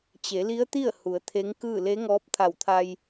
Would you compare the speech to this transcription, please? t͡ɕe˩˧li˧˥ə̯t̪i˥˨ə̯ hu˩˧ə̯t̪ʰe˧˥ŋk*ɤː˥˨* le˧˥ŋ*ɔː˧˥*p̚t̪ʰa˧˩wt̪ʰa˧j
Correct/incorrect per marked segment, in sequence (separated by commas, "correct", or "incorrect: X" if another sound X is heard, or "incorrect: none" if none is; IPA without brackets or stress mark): incorrect: ɯː˥˨, correct